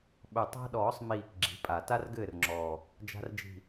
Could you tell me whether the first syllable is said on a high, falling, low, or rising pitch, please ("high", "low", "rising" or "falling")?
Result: low